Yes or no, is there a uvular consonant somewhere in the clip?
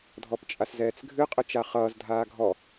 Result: yes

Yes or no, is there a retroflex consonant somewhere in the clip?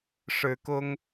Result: yes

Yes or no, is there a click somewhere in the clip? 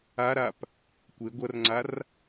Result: yes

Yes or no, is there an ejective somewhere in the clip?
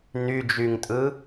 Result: yes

